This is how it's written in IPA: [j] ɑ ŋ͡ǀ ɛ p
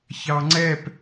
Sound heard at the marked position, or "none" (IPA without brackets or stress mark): ç